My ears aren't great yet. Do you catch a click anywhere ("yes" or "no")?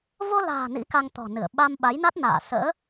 no